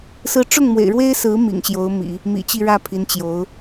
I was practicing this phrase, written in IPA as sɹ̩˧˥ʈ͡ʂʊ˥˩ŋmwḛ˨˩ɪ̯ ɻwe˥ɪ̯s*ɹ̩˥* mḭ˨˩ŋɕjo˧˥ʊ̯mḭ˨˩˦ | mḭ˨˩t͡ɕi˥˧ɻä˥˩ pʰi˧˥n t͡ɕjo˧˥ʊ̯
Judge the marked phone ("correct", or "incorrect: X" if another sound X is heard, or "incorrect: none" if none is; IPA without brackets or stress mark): incorrect: ɹ̩˧˥